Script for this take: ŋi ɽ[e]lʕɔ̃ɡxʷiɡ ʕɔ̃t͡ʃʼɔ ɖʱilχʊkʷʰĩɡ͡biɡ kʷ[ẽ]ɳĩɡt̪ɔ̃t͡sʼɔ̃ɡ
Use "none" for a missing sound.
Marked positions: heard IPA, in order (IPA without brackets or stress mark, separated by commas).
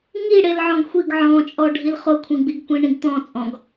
e, ĩ